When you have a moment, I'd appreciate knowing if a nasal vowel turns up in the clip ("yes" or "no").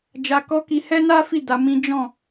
yes